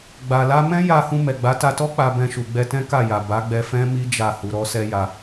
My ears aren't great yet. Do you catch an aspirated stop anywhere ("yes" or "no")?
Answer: no